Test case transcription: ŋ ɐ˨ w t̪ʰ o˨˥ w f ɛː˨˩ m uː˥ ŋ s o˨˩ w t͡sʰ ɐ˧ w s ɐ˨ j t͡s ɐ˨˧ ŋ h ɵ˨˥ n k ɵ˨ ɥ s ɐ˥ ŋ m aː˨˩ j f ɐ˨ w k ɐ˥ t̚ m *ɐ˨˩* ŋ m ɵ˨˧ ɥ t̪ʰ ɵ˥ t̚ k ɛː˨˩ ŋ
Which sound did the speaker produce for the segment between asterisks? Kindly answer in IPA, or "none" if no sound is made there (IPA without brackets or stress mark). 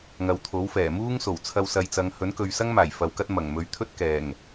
ɐ˨˩